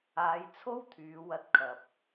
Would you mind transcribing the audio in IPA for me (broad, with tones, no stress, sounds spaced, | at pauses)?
aː˨˧ j t͡sʰ o˥ w t̪ʰ yː˨˧ w ɐ˧ t̚ kʰ ɐ˨ p̚